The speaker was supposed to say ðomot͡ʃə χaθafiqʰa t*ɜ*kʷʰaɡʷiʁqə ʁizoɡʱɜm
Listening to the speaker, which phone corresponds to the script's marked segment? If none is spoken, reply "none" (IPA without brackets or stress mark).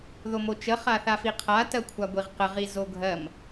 ɜ